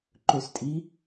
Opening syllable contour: falling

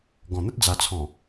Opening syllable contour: low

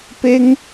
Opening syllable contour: high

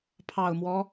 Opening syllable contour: low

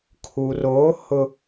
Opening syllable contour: low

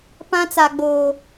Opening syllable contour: high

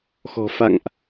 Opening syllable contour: low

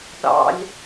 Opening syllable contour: high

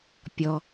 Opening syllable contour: low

